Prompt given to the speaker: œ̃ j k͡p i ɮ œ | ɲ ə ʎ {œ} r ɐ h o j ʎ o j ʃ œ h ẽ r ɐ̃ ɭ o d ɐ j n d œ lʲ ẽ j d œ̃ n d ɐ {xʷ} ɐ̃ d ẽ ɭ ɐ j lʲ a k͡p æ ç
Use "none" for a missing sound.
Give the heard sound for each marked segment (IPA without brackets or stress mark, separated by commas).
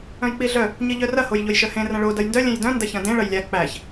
œ, ç